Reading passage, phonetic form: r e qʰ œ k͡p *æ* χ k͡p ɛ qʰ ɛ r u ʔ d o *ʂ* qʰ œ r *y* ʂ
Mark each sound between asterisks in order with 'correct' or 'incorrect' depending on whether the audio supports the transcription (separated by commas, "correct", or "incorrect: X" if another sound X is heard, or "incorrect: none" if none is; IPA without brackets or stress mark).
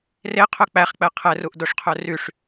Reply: correct, correct, correct